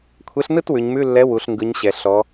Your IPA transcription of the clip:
kʷʰ e˨˥ ɬ n ɯ˥˧ t w ʉ˩˧ ɲ m ʉ˧˥˧ lː ɛ˨˥ w u˩˧ ɬ ŋ ɡ ɯ˩˧ ɲ ɕ ɛ˩ ɬ ɔ˩˧

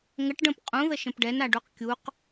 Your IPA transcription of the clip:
ŋ ə ʈ ɖ ə̃ p qʼ ũ ð ə ʃ ə̃ p ɖ ɛ n a ɖ u q kʲ u q

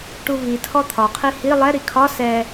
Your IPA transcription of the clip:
ʈ u v i tʰ ɔ t̪ʰ ɒ qʰ i h i lˠ ɛ ɾ i kʰ ɒ s ɛ

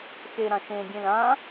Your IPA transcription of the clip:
x e ɾ ã ʃ ẽ ɡʲ ẽ l ã

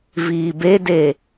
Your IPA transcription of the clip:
v iː b e d e

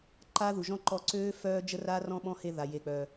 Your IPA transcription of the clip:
ǃ a˦ ð u˨ ʒ ɔ̃˦ ǃ ɔ˧ ǀ øː˦ f œː˦ d͡ʒ ə˦ r a˦ r ɔ̃˦ ɓ ɔ̃˦ h e˧ ð a˨ j e˨ k͡p œː˨

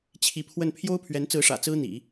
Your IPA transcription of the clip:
t͡ɕʰ i˧˥ pʰ w ə˥˩ n pʰ j o˥ ʊ̯ pʰ ɥ ɛ˧˥ n t͡s ɹ̩˧˥ ʂ ä̰˨˩ t͡s ɹ̩˥ n̪ ḭ˨˩˦

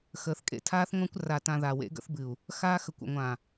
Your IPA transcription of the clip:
x əː˨ θ kʼ ḛ˦ tʰ aː˦ θ ŋʷ ã˦ kʷ r a˨ t ã˨ ð a˨ w ḛ˦ ɡ ə̰˦ θ b ɨ˨ u̯ | x aː˦ x ə˨ kʷ ə̰˨ ŋʷ ã˨

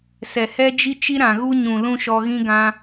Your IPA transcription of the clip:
s ɛ˨ h ɛ˦ d͡ʒ i˦ t͡ʃ i˦ ɾ ã˨ ɣ u˦ ɲ ũ˨ l ũ˦ ʃ ɔ˧ ɣ ĩ˦ ɡ ã˧

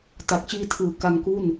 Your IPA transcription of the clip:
t a˨˩ k̚ t͡ɕ iː˦˥ tʰ ɯː˨˩ k a˧ ŋ k u˥˩ n

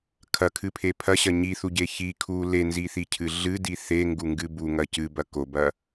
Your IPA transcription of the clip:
kʰ ɐ kʰ ɨ pʰ e pʰ ɐ ɕ ɐ ɲ i θ u ɟ e ç i kʰ u l e n z i θ i cʰ ɨ ɮ ɨ d i θ e ŋ ɡ u ŋ ɡ ɨ b u ŋ ɐ c ɨ b ɐ k o b ɐ

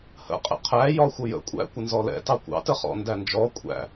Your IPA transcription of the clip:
h ə̰ qʼ ɛ̰ qʰ æ j ɒ xʷ ə j ə̰ kʷʼ æ̰ kʷ ə n z ɔ l ɛ̰ t ɑ kʷ ɑ̰ t ə χ ɔ̰ n d æ n d͡ʒ ɔ kʷʼ æ̰

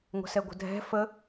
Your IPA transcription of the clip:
ŋʷ ə̤ s ɛ ɡʷ ə̤ dʱ ɛ̤ f ə

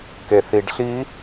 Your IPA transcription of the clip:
k e θ i ɖ ɬ i

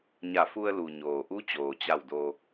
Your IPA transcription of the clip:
ɲ a˧˩ f u˧ ə̯ l u˩ ɲ oː˩ ʔ u˧˥ t͡ɕ oː˩ t͡ɕ a˧˩ w d o˩

